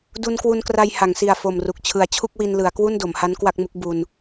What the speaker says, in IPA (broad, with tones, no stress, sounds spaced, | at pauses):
d u˧ n k w u˧ n k r a˧ j h a˩˦ ŋ s i˨˩ a̯ f o˨˩ m r u˨˩ k̚ t͡ɕʰ ɯ˨˩ a̯ t͡ɕʰ u˥˩ k̚ w i˧ n l ɯ˩˦ a̯ k w u˥˩ n d o˩˦ m h a˦˥ n k w a˥˩ k̚ m u˦˥ k̚ b u˧ n